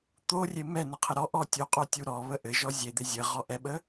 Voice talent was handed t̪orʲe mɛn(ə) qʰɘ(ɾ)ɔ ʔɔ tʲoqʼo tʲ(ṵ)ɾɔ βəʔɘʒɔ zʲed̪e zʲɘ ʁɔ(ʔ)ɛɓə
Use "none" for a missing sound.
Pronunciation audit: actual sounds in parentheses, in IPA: ə, ɾ, u, ʔ

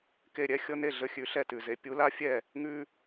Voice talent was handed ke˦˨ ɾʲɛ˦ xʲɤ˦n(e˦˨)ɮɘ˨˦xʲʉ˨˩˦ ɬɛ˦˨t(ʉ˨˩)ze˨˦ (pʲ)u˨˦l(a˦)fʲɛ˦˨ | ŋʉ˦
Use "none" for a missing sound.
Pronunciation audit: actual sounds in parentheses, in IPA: e˦˨, ʉ˨˩, pʲ, a˦

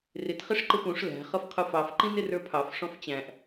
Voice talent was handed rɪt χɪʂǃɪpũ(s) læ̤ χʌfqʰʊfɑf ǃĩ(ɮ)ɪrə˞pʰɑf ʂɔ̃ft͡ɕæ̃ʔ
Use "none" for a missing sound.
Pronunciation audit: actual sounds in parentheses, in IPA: ʂ, n

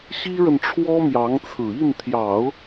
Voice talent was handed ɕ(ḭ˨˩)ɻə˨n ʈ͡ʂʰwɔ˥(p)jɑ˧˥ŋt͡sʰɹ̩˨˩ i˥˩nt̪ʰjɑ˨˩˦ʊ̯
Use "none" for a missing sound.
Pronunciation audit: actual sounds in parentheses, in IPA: i˥, m

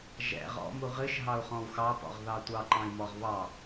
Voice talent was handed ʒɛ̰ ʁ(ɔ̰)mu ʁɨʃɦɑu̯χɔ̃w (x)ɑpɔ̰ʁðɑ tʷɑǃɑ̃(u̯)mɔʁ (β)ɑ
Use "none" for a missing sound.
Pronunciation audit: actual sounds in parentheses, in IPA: ɔ̰, x, i̯, β

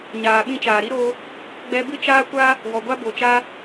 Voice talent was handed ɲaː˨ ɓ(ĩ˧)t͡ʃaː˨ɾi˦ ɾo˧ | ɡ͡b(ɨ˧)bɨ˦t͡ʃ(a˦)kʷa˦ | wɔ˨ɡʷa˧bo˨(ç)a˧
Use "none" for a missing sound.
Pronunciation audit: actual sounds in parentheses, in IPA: ĩ˧, ɛ˧, aː˦, t͡ʃ

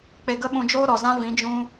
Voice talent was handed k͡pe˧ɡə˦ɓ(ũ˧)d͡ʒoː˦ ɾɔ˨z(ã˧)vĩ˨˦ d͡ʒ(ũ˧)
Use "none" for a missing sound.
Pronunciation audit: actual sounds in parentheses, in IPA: ũ˧, ã˦, ũ˦

